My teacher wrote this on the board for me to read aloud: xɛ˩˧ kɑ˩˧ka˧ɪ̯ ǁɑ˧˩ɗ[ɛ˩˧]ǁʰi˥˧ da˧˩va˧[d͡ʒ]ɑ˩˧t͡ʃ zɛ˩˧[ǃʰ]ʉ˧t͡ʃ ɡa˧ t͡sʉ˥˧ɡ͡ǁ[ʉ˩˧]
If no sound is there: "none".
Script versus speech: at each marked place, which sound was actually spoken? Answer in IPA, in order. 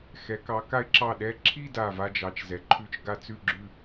ɛ˧, d͡ʒ, ǃʰ, ʉ˥˧

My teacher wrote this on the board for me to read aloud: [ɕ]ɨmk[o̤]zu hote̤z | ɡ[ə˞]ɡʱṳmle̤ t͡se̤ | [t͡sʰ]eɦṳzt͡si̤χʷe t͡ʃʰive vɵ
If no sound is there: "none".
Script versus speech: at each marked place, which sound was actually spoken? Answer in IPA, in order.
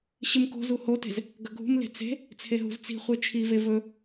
ɕ, o̤, ɐ, t͡sʰ

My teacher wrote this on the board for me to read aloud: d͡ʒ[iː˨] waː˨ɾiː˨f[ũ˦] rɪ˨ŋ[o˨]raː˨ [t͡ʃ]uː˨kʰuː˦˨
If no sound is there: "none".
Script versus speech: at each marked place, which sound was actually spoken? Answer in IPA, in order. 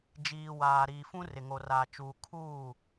iː˨, ũ˦, o˨, t͡ʃ

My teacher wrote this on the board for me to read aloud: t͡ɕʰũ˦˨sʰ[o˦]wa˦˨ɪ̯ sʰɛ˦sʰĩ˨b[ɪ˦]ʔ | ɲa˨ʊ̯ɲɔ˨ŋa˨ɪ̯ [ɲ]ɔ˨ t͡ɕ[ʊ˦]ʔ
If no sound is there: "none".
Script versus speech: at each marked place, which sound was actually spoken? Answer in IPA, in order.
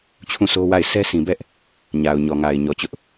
o˦, ɛ˦, ɲ, ʊ˦

